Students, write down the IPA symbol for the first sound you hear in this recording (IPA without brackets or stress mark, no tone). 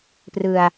p